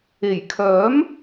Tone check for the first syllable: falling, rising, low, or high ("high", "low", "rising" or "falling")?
low